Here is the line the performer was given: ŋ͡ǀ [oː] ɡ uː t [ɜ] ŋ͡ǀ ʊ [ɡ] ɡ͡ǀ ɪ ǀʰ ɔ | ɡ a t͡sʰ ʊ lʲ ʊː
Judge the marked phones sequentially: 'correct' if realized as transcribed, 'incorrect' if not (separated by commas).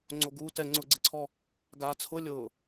incorrect, incorrect, incorrect